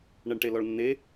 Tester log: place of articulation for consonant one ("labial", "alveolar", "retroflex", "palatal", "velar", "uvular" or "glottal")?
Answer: retroflex